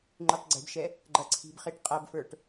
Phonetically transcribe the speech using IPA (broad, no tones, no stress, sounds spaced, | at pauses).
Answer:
ŋ͡ǃ ʉ tˤ ɡ͡ǀ e̤ b ʃ ɛ | ɡ͡ǃ ɐ ǀʰ i̤ b χ e ʈ qʼ ɐ b f ə˞ ʈ